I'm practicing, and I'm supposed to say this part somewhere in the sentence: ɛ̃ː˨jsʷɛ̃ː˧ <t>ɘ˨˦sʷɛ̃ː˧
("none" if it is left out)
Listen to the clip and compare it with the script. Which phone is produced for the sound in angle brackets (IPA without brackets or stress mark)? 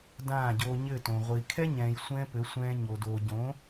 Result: p